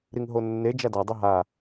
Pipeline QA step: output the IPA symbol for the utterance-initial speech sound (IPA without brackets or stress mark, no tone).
ɾ